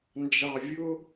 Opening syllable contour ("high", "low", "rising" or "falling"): low